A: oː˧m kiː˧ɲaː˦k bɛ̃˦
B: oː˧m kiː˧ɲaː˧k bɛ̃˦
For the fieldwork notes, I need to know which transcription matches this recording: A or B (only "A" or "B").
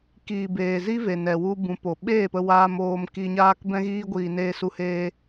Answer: A